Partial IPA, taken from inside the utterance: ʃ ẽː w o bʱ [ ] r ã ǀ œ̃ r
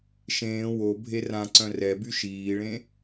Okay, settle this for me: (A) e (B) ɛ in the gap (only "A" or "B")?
A